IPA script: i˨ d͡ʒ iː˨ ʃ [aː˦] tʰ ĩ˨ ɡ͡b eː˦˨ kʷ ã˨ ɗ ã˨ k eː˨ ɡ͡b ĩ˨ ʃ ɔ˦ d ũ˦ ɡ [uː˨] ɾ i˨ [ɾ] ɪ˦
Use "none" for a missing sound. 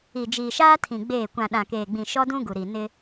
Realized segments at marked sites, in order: aː˦, u˨, n

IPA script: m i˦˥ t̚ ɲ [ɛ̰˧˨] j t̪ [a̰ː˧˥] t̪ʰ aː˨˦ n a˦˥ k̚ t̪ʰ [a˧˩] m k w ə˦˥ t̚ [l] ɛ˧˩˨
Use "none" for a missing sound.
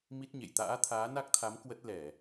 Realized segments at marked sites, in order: ḛ˧˨, a̰ː˧˥, a˨˦, l

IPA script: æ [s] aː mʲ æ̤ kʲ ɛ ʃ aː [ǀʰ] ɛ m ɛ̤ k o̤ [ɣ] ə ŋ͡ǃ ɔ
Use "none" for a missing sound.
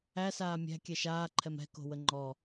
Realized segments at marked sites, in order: s, ǃʰ, w

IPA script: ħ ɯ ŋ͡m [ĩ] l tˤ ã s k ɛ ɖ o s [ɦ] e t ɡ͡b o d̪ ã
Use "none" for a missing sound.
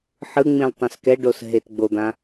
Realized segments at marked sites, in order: ĩ, ɦ

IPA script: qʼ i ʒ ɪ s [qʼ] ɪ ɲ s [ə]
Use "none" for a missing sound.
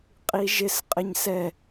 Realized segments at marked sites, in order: qʼ, ɛ

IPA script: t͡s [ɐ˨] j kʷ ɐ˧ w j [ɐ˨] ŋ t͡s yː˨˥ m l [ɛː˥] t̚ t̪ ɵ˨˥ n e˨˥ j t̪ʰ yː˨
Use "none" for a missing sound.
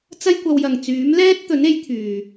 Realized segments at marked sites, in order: ɐ˥, ɐ˨, ɛː˥

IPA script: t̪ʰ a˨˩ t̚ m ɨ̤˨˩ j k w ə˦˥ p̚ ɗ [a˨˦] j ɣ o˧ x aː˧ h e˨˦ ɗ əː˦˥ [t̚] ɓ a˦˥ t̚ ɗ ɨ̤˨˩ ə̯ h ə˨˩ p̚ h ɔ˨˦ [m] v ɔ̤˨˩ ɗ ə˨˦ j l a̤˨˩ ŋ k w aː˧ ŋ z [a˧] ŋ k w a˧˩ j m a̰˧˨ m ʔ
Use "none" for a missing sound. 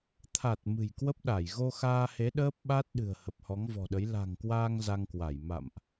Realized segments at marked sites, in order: a˧˩, p̚, ŋ, a˧

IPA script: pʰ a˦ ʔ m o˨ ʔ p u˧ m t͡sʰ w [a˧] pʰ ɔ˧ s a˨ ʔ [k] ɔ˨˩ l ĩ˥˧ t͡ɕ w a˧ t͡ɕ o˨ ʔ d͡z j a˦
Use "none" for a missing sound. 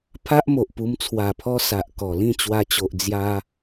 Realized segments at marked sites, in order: a˨˩, k

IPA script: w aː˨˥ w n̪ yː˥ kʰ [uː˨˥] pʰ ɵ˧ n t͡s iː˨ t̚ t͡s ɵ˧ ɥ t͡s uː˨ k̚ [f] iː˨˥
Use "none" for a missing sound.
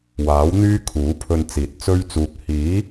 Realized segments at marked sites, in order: uː˨˥, h

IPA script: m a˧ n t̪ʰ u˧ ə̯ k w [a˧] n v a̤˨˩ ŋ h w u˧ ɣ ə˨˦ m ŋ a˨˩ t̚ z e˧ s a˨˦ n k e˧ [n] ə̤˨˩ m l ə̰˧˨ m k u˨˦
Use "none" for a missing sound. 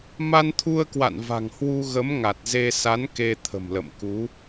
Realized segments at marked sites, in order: a̰˧˨, t̪ʰ

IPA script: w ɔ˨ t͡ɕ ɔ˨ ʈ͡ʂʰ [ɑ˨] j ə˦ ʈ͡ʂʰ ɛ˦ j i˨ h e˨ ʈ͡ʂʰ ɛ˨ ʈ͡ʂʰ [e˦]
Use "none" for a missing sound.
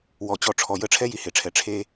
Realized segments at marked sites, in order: ɔ˨, e˦

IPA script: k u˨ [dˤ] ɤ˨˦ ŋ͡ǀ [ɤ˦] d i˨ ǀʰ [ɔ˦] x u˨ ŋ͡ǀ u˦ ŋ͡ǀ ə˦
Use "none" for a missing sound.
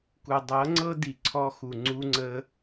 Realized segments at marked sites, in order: dˤ, ɤ˦, ɔ˦

